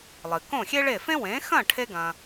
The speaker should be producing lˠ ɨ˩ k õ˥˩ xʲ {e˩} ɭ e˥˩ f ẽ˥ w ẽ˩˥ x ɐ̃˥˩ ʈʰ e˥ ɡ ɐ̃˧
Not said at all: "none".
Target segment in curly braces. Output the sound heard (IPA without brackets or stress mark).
e˥